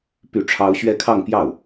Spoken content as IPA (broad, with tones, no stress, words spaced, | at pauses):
py˥˩ʈ͡ʂʰɑ˥ʊ̯ ɕɥɛ˥˧kʰɑ˥˧ŋpjɑ˥˩ʊ̯